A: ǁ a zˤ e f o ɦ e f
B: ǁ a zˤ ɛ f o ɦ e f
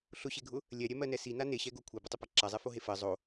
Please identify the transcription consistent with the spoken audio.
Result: B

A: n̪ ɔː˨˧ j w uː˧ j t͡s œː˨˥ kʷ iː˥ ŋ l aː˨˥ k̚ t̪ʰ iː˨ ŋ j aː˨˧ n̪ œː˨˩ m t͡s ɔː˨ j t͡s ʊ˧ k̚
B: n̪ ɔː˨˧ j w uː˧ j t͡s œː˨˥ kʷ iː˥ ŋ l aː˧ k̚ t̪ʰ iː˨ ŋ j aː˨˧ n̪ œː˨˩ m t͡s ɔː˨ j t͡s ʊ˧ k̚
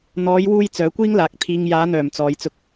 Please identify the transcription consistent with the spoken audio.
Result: A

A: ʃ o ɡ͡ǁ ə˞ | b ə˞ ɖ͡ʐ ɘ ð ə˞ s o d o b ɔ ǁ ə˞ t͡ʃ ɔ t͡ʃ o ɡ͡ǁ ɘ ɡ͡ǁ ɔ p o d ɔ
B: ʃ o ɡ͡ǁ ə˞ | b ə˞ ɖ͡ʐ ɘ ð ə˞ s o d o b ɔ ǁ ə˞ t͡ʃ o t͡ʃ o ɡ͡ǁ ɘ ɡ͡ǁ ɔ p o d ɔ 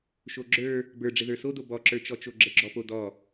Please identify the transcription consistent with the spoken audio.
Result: A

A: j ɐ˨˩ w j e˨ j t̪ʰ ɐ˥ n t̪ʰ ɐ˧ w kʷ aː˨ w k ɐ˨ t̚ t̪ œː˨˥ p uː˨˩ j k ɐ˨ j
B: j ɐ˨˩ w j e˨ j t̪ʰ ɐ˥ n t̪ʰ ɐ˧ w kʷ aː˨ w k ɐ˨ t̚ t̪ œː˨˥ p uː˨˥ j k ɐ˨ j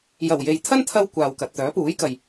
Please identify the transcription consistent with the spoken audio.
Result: B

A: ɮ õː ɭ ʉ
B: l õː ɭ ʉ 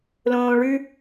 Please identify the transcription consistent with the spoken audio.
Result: B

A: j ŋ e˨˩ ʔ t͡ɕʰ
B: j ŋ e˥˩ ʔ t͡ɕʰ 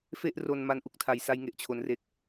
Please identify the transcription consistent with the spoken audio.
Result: A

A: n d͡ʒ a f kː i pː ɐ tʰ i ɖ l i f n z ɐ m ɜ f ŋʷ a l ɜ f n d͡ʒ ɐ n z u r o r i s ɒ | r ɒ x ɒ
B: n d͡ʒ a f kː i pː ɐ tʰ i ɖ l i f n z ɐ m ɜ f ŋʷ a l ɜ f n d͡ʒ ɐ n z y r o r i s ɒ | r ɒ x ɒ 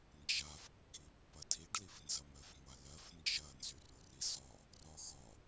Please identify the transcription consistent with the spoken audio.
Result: B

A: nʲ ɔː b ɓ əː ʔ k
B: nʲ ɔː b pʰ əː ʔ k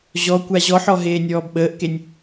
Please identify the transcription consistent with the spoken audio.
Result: A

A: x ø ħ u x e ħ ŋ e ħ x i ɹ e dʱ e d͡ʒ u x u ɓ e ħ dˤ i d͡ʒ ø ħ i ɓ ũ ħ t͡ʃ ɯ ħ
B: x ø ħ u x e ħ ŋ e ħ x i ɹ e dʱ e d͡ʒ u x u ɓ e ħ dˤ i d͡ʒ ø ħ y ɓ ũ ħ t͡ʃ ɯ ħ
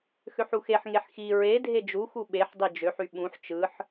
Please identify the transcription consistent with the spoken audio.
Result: B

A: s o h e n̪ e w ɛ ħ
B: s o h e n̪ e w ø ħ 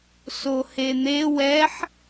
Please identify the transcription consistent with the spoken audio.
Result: A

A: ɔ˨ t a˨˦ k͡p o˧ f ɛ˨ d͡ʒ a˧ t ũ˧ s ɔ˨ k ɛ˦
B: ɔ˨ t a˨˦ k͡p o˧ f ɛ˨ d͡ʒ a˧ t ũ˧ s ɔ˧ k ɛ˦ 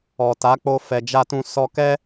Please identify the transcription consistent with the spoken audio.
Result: B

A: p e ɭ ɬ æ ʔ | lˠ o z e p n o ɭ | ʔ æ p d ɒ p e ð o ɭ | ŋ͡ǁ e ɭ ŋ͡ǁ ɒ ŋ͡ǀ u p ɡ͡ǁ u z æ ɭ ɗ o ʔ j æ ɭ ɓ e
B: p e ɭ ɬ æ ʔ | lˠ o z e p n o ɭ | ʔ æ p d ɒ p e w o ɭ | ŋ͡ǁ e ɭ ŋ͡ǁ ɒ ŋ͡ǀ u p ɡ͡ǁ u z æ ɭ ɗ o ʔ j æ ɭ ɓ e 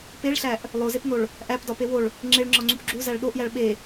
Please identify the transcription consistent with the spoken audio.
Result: B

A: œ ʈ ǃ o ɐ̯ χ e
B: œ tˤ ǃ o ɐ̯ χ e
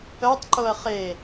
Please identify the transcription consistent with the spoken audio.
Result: B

